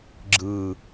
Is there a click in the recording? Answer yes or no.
yes